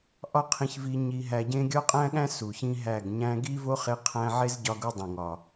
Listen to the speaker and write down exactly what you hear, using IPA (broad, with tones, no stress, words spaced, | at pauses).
ʔɒ˦qʰĩ˧çvi˧ ɲi˧ɦæ˧ɟẽ˦ ɡʲɒ˦qʼæ̃˦ɠæ̃˦ su˨çĩ˦ɦæ˦˨ɡ ɲæ̃˧ɡi˦vo˦χe˧ qʰæ̃˧ʕe˦zɟɒ˧ ɡu˦dˤĩ˨ŋɒ˨